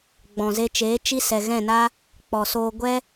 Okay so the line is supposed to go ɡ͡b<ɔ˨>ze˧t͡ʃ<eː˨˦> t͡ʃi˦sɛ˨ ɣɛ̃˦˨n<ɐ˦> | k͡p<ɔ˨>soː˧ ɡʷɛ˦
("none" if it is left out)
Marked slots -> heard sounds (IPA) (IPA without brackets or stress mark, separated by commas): ɔ̃˨, eː˨˦, a˦, ɔ˨